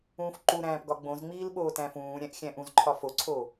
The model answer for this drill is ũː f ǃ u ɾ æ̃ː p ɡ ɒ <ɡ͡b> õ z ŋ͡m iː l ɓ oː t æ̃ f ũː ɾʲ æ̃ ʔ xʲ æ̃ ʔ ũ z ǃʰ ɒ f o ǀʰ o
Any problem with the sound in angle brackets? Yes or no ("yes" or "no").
no